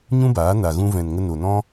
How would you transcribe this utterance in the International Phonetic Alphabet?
ɲ ũ˦ b aː˨˦ n a˨ ɣ ũ˧ v ɛ̃˨ n ŋ ə˧ n o˨ n ɔ̃˦

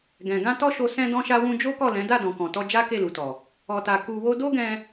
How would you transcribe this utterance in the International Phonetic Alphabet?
ɡ ɛ̃˨ ɡ ã˧ t ɔ˦ ʃ o˧ s ɛ̃˧ d ɔ̃˧ ʃ a˧ w ũ˧ d͡ʒ o˦ k ɔ˦˨ l ɛ̃˨˦ d a˦˨ d ɔ̃˨ k ɔ̃˨ t ɔ˧ d͡ʒ a˦ k e˦˨ l u˨ t ɔ˨ | ɔ˧ t a˧ k u˧ w o˦ d o˦ ɡ ɛ̃˧

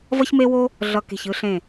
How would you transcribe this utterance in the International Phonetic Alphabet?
v ʌ˥ ç m e˥ w o˥ | ɮ ʌ˧˩ k e̤˧˩ ç ɯ˧ ɬ ẽ˧˩

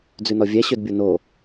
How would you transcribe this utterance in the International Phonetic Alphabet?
d͡z ʉ n ɔ vʲ æ ɕ ø d bʲ o n o

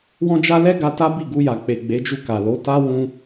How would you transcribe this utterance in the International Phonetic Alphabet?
w ɔ̃˦ d͡ʒ a˦ l ɛ˦ ɡ a˧ t a˦ b i˦˨ ɡ u˧ j a˨ k͡p e˨ ɡ͡b e˨˦ d͡ʒ u˧ k a˨ l o˨˦ t a˦ w ũ˧

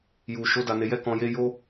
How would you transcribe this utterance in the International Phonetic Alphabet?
j u˨ ʃ o˨˦ d a˧ n e˧ j ɛ˦ k ɔ̃˧ j e˦ j o˦

